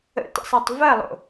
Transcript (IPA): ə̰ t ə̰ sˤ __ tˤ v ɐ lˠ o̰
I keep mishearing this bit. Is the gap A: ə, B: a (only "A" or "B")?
B